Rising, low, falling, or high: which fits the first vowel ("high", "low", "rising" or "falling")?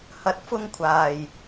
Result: rising